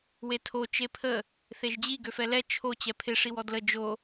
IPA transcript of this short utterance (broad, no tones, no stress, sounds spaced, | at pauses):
w e tʰ o t͡ʃ e pʰ ə | θ e ʒ d͡ʑ i ɡ ø f ɛ l ɛ t͡ʃʰ o t͡ɕ ɛ pʰ ɪ ʂ i w ɔ d l ə d͡ʒ o